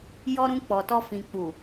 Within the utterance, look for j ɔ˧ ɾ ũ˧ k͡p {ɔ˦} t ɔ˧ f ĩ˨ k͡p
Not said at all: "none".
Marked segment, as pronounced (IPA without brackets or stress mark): ɔ˨